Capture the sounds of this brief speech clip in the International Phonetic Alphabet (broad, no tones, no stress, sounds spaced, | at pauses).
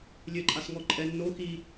lʲ ɘ ǃʼ a s ŋ ɔ ǃʼ ɛ nː o x i